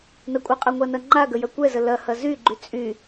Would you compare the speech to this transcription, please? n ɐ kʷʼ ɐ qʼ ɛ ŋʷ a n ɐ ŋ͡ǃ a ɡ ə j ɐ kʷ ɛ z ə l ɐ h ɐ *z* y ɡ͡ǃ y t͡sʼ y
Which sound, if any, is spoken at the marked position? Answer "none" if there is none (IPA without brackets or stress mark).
z